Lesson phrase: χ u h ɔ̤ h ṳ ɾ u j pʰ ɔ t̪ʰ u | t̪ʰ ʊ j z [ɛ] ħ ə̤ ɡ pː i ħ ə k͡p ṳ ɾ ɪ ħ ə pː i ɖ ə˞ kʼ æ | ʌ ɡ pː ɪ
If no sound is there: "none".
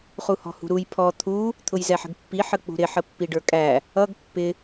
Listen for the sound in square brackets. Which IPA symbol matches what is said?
ɛ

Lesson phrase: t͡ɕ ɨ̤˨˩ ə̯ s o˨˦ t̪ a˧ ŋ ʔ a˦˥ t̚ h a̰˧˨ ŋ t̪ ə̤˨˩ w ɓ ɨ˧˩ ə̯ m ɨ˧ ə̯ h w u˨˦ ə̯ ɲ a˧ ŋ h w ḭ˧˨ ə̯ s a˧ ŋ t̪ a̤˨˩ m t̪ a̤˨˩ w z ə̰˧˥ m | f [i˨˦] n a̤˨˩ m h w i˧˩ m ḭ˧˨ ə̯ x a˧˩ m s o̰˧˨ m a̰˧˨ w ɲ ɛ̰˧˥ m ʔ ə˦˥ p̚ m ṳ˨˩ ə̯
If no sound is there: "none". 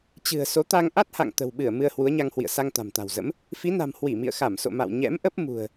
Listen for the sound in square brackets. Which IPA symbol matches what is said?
i˨˦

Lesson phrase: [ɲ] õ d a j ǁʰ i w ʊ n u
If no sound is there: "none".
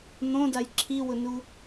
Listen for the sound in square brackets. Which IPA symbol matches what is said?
n̪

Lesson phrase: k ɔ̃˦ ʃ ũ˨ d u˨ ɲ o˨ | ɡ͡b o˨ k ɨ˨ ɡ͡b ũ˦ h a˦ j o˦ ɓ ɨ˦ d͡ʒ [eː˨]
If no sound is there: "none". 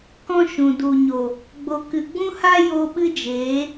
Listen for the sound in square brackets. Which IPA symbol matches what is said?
eː˨˦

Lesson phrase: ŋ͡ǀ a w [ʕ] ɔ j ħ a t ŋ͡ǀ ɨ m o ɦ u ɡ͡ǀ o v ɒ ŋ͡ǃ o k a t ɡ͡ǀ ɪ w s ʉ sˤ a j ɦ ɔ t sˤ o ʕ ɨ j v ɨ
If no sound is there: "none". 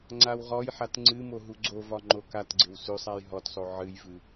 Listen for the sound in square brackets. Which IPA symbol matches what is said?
ʁ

